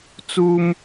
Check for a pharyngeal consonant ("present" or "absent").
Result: absent